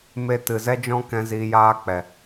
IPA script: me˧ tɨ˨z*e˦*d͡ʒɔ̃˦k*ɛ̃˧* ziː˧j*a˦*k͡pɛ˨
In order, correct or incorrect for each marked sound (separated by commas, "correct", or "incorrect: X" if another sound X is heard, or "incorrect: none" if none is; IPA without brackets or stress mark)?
incorrect: ɛ˦, correct, incorrect: aː˦